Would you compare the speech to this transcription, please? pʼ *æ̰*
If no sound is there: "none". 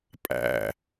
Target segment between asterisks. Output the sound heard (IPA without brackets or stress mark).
æ̰